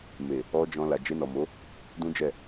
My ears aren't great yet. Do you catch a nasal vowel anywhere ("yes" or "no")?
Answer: yes